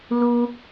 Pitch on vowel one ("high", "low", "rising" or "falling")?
high